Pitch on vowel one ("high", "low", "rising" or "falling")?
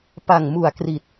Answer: low